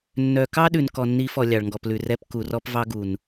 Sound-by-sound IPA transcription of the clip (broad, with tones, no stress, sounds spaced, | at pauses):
nː œ˨ k ɑ˦ ɗ ʉ˨ n k ɔ˨ nː i˨˦ f ɔ˨ lʲ ɑ˨ ɭ ŋ ɡ ɔ˨ p l ʉ˨ r ɛ˦ p k u˨ r ɔ˦ p v ɑ˦ ɡ u˨ n